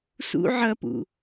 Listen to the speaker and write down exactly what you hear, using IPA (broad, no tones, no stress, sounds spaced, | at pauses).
s ṵ ʕ ɐ p ṵ